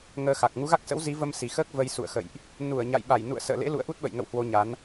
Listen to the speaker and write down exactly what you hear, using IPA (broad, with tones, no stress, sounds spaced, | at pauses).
ŋ əː˧ x a˨˩ k̚ ŋ u˨˦ ɣ a˦˥ k̚ s ə̰˧˥ w z i˨˦ v ə˧ m s i˨˩ x əː˦˥ k̚ v ə˧ j s ṵ˧˨ ə̯ x ə̰˧˨ j ʔ | n u˧˩ ə̯ ɲ a̰˧˨ j ɓ a˧˩ j n ṵ˧˨ ə̯ s ə̰ː˧˨ l ḛ˧˥ l ṵ˧˨ ə̯ ʔ u˦˥ t̚ ɓ ə̰˧˨ j ŋ ə̰˧˨ w h w o˧ ɲ a˨˦ n